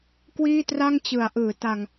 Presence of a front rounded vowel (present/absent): absent